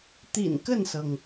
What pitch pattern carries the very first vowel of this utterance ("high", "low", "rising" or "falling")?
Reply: low